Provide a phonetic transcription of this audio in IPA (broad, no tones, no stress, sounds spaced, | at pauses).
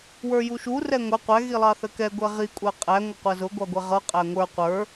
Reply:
w ə˞ j u ʃ u r ɛ ŋʷ ɛ qʷ æ ɣ i lˠ ɑ θ ə k ɛ ɡʷ ɛ ʁ i kʷʼ æ qʼ æ ŋʷ ʌ qʷ æ z ʊ ɡʷ ɑ ɡʷ ɛ ʁ ʌ qʼ æ ŋʷ ə˞ qʷ ə˞